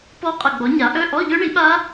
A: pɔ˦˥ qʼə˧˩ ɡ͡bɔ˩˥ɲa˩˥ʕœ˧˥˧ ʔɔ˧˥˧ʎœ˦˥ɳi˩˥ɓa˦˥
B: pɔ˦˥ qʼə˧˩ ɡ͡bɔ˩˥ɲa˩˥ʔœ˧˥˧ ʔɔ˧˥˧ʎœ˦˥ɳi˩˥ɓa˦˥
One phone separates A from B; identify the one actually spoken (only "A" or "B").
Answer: B